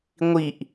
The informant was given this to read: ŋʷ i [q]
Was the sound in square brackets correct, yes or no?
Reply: no